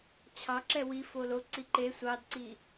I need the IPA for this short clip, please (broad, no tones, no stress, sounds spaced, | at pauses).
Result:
t͡ɕʰ ɑ ǁ ɛ w i f o l o ǀ i ǃ e sʷ ɑ d ǀ i